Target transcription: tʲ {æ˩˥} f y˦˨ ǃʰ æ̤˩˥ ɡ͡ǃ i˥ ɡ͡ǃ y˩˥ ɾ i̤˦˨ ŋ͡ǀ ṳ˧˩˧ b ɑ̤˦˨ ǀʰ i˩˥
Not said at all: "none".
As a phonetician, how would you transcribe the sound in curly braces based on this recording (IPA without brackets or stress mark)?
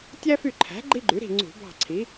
æ˥